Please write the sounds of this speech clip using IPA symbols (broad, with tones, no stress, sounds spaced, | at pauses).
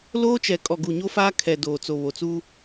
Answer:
l oː˦ t͡ʃ ɛ˨ kʼ ɔ˨ ɡ u˨ ɲ o˦ f aː˦ kʰ ɛ˨ d oː˨ t͡s o˨ β o˨ t͡s uː˦